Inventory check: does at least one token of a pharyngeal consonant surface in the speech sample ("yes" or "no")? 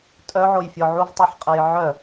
yes